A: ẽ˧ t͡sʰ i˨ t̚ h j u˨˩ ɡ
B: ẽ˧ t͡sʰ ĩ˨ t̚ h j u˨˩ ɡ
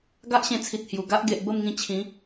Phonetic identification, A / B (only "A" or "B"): A